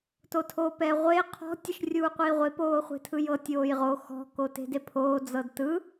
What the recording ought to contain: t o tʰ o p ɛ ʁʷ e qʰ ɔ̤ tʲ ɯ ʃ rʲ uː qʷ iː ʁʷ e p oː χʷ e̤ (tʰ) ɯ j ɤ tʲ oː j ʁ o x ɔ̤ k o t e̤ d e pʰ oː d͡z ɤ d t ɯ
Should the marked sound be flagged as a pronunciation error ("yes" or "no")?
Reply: no